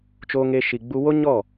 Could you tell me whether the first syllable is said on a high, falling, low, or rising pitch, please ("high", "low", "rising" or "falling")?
high